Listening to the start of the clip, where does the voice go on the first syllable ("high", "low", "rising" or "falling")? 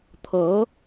rising